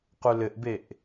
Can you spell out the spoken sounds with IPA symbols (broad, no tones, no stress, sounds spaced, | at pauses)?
q u l ɘ ʔ b e ʔ